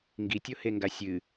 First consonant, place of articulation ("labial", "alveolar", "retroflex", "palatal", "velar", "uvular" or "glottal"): velar